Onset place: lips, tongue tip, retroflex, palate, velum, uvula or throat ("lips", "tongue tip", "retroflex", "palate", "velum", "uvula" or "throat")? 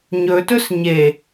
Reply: palate